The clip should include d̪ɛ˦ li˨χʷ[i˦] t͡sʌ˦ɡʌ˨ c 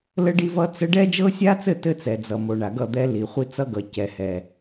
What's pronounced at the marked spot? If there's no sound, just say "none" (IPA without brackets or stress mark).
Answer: i˦